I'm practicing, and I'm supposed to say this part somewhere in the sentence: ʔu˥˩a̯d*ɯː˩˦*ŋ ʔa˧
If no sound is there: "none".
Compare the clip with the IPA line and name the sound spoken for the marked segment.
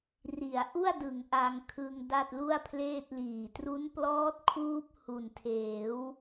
ɯ˩˦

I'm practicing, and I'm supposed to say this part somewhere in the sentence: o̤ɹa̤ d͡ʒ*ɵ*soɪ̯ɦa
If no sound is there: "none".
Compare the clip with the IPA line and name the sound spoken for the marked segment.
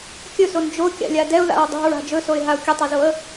ɵ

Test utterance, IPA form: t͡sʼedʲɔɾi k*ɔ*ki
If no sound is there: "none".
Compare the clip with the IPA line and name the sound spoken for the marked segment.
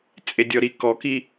ɔ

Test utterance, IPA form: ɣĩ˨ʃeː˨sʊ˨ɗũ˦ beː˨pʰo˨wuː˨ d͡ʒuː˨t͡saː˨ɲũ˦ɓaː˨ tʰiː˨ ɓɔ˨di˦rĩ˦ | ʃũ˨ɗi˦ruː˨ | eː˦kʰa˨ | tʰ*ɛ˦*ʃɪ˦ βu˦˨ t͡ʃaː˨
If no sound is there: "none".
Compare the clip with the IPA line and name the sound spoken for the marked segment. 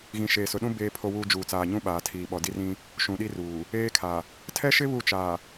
ɛ˦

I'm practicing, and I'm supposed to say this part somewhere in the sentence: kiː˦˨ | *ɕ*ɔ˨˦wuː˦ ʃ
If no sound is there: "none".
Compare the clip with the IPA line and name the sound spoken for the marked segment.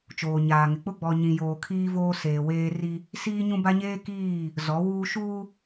z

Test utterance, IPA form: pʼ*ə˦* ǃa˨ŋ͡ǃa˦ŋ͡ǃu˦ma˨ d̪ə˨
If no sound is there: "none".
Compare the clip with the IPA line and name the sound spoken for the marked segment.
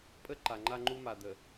ə˦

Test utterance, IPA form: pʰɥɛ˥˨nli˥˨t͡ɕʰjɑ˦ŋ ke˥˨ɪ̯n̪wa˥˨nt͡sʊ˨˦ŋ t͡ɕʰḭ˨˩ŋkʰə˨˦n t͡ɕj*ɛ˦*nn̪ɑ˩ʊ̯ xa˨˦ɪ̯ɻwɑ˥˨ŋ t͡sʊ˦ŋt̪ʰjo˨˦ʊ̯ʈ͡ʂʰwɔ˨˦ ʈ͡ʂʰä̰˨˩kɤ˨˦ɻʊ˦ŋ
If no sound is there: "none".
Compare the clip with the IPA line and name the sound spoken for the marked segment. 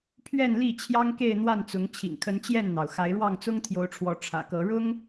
ɛ˥˨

